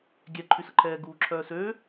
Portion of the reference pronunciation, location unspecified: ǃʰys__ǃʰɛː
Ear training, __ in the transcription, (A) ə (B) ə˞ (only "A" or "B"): A